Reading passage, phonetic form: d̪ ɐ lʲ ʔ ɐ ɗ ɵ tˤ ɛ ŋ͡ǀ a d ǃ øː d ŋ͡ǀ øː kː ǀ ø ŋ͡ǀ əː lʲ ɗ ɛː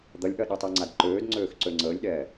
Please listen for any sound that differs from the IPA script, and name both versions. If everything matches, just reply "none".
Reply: kː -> x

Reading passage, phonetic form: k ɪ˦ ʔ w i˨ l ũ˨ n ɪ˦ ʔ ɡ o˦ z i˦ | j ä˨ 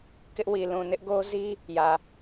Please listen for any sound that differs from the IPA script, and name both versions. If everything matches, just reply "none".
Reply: none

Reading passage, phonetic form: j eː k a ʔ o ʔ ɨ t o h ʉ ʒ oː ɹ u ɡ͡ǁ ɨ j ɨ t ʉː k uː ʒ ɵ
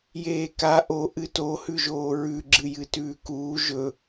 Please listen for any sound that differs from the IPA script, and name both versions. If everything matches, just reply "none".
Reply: u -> ʉ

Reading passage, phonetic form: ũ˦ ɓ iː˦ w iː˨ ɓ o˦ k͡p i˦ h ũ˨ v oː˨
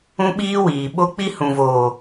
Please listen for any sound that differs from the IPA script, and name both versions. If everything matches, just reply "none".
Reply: none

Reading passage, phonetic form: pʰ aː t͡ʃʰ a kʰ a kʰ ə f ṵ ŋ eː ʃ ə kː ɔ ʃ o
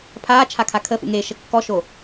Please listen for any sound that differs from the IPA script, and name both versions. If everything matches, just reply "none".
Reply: none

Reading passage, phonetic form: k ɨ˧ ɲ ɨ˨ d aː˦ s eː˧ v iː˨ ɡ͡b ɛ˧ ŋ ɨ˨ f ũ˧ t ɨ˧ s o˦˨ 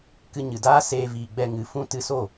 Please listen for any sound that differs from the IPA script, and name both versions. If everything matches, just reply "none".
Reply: none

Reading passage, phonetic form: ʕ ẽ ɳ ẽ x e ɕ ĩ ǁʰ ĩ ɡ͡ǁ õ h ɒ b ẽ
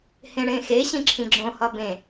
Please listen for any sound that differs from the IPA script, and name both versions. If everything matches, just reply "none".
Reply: ʕ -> h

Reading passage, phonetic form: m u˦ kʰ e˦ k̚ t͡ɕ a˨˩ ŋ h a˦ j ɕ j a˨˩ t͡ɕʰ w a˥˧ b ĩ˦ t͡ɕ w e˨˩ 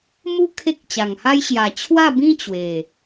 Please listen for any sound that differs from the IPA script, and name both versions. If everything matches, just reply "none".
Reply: none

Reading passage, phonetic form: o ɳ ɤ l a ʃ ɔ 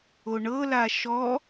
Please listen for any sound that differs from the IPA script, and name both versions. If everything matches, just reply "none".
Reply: none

